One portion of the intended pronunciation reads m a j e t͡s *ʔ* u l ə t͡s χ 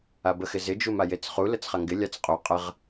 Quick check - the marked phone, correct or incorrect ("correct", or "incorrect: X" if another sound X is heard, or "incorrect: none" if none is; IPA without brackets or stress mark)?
incorrect: χ